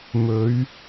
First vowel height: mid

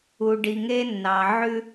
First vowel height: high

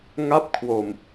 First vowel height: low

